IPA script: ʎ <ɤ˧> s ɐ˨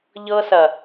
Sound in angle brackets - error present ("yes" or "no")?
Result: no